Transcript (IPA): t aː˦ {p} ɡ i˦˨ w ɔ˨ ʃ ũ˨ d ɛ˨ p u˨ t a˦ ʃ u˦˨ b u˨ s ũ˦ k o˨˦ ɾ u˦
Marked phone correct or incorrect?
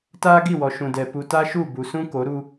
incorrect